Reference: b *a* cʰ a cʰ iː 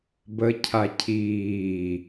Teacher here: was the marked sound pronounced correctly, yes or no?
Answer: no